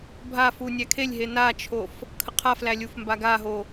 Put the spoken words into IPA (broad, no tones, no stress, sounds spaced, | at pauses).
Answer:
bʱ a f u nʲ æ kʰ e lʲ ɦ e n a t͡ʃʰ o f | kʰ ə qʰ a f l æ lʲ u f m b a ɡ a ɦ o